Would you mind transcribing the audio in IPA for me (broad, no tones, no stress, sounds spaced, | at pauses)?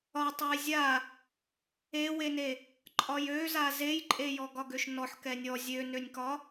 ɒ tˤ e j zʲ a | e w e n e | ǃʼ ɒ j ø z a z e j ǃʼ e j ɔ ɡ ɒ ɡ ø ʃ n ɔ ħ k ɛ nʲ ɔ zʲ ø n ø nʲ k ɒ